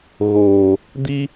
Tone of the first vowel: low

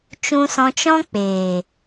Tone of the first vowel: high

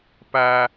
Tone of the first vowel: low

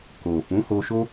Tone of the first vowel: low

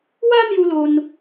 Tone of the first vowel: high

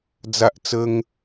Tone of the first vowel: high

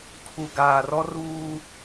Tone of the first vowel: low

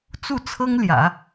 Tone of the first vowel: falling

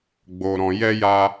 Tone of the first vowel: low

